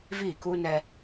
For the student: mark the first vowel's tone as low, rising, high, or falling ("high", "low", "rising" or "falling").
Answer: falling